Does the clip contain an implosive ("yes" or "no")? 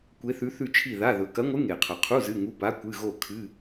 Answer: no